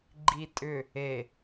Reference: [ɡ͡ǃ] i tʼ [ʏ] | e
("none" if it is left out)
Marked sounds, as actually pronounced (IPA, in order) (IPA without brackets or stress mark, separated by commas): ɡ͡ǃ, ʏ